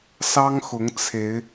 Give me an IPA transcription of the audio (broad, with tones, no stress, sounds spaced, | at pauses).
s ɑ˦ ŋ x ʊ˨˦ ŋ t͡sʰ e˨˦ ɪ̯